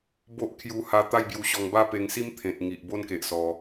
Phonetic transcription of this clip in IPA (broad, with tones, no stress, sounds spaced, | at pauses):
b o˦ ʔ kʰ j u˧ h a˧ t̪ a˥˧ j b j u˧ ɕ ɔ˧ ŋ b a˥˧ p e˧ ŋ s i˦ m t̪ʰ ẽ˨ t̚ ŋ i˨ ʔ b o˦ n k e˨ ʔ s ɔ˧